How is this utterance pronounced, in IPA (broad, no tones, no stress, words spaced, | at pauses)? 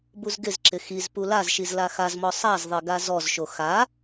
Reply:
buzɡɪzǁɪ xiz pulazʃiz laxazmɔ sˤazðˤe ɡazɔzʃo xa